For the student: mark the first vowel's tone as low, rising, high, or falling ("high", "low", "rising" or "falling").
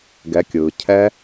rising